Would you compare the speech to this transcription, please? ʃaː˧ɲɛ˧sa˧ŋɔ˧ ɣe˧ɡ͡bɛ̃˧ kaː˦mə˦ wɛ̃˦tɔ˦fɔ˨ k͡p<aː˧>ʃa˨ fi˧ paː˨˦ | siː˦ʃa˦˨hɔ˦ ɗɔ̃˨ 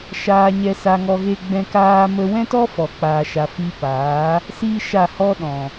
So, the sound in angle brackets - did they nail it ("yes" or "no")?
no